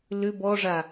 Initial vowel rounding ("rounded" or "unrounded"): rounded